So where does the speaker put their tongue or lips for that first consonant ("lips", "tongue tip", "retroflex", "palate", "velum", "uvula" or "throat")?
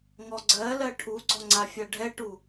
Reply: velum